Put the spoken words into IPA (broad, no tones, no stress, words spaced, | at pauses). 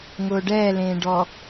ŋʊːɖɛː lẽːɖɔ